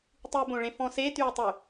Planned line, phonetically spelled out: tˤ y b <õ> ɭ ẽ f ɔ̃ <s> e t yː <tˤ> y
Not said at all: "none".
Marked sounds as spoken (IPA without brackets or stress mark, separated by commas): õ, s, tˤ